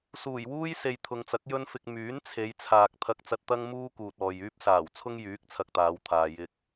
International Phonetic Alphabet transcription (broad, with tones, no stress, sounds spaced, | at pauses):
s uː˨˩ j w uː˥ j s e˨ j t̪ʰ ʊ˨ ŋ t͡s ɐ˨˥ k̚ j ɵ˥ n f ɪ˧ k̚ m yː˨˥ n t͡sʰ e˨˧ j t͡sʰ aː˨ k̚ t̪ʰ ɐ˧ k̚ t͡s ɐ˧ t̚ t̪ ɐ˥ ŋ m uː˥ k uː˨ t̚ ɔː˨ j yː˥ p̚ s aː˨˩ w t͡sʰ ʊ˥ ŋ j yː˨˥ k̚ t͡sʰ ɐ˧ k̚ t̪ aː˨˧ w t̪ʰ aː˨ j ɪ˧ k̚